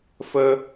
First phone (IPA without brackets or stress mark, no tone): f